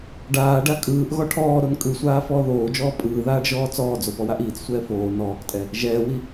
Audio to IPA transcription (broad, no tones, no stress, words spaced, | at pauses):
ɖaːɖa kʼɯːʔ ɣɔʈʰɔːɾon kʼɯsʷaː fɔːðoːd͡ʒɔː pʼɯːðaːɖ ʒɔːt͡sɔːd͡zo pɔwaʔiːt͡ssʷɛː foː nɔːktʼɛ | ʒɛːwi